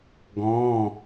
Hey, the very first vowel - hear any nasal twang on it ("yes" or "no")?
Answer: yes